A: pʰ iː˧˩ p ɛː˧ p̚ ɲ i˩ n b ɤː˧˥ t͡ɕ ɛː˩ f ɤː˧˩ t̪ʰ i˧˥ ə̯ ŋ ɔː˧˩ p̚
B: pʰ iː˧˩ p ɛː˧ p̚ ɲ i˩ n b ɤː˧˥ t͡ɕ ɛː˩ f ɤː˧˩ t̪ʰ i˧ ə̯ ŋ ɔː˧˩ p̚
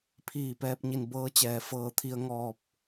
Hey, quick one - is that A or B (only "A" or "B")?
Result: B